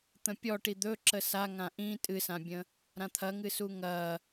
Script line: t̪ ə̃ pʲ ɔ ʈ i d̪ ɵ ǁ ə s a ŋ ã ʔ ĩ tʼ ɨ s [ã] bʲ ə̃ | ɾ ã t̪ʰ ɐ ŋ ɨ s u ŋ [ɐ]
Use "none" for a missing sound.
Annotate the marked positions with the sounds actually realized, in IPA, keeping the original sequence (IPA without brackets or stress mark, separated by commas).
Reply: ã, ɐ